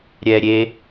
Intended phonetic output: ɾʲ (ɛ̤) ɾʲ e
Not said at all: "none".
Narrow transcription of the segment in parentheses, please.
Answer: ɛ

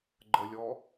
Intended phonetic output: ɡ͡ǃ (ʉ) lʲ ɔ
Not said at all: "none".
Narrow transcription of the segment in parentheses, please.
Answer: ə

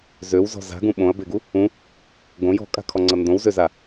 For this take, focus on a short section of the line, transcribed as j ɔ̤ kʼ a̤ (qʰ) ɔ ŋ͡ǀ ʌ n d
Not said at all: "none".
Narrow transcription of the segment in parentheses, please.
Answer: kʰ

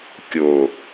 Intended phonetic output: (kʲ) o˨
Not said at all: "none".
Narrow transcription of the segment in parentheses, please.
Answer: kʲ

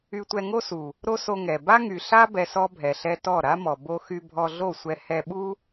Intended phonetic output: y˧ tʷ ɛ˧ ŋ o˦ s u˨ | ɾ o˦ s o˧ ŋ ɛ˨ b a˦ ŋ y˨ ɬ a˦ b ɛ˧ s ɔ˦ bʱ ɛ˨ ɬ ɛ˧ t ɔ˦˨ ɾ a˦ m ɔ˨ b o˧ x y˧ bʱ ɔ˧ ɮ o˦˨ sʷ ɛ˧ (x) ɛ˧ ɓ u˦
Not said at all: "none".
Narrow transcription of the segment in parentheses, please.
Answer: h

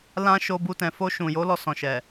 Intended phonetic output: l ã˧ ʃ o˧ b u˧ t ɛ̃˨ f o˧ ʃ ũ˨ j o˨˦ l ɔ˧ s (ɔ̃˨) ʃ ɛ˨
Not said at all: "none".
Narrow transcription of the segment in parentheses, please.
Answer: ɔ̃˨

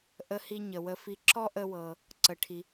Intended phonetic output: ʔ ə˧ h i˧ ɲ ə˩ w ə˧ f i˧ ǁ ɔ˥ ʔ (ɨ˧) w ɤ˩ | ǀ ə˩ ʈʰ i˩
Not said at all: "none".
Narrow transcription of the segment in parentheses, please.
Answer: ə˧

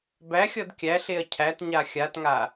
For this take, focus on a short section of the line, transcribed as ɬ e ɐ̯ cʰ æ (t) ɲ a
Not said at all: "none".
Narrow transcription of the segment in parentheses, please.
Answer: t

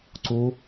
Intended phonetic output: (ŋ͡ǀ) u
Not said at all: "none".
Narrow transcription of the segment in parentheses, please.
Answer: ǀ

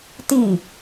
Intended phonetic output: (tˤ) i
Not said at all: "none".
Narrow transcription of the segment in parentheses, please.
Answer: t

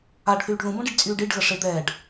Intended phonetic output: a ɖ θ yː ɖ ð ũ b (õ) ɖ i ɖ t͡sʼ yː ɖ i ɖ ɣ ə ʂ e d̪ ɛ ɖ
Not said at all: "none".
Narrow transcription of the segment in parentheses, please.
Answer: õ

